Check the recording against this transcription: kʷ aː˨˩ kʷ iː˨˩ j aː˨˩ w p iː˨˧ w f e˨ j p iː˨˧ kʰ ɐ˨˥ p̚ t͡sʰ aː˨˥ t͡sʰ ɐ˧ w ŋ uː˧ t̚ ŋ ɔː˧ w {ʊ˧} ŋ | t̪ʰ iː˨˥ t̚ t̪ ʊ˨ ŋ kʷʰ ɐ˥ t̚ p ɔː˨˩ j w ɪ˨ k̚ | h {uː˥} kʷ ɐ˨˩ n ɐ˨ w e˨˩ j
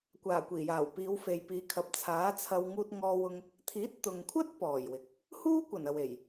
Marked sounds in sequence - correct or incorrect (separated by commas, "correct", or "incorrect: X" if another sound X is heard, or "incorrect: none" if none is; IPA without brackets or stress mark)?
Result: correct, correct